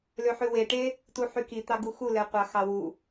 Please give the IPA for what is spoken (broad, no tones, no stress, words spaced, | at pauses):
løħʉweʈe | tuħykit̪ɑ ɡuxulɛqʷɑ xɑwu